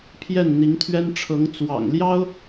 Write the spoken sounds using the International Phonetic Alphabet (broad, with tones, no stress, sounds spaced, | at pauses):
pʰ j ɛ˥˩ n n̪ i˧˥ ŋ t̪ʰ ɥ ɛ˥ n ʈ͡ʂʰ ɤ˧˥ ŋ t͡s w ɑ̰˨˩ ŋ l j ɑ˥ ʊ̯